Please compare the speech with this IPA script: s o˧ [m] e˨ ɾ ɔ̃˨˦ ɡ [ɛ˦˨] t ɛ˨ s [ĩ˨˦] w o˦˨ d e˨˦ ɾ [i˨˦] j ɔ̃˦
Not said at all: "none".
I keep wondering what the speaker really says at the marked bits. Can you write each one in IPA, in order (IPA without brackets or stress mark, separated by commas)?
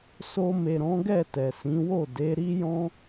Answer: m, ɛ˦˨, ĩ˨˦, i˦